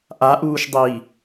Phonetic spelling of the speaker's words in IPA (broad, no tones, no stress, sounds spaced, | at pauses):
ʔ a ʔ uː ʃ dˤ iː